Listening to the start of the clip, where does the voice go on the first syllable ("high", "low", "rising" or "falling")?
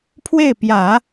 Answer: falling